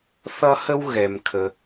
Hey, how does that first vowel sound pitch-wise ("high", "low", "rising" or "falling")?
high